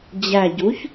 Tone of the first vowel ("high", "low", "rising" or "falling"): low